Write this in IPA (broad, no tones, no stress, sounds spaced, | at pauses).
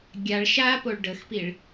ɡʲ a ɭ ʃ a p o ɭ ɖ ə x p i ɭ